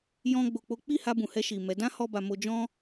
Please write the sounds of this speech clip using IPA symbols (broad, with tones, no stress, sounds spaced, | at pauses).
j ɔ̃˦ ɡ͡b o˧ k͡p o˦ k͡p i˦˨ h a˧ b ũ˨ h ɛ˧ ʃ i˨ m ɛ˨˦ d ã˦ h ɔ˧ b a˨ m o˧ d͡ʒ ɔ̃˦